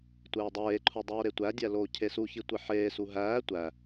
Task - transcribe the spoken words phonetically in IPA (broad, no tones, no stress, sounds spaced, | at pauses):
tʷ eː dˤ eː ǃʰ u dˤ oː ɾ e tʷ æ dʲ æ l oː cʰ e s u ç i tʷ e ħ eː s u ɦ æː tʷ æ